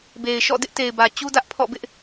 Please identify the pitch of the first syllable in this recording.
low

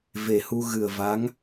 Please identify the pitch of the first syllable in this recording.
low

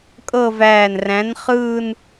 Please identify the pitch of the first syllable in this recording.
falling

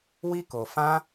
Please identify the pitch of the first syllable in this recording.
high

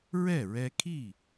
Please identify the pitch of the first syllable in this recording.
falling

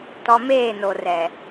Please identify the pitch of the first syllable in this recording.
low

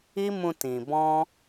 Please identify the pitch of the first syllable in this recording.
high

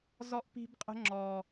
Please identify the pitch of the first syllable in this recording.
high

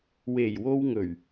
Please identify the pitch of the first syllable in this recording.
low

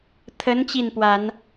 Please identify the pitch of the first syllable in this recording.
rising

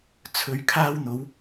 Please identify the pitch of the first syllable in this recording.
low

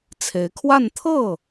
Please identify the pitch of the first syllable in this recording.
rising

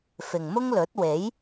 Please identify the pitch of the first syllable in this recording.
low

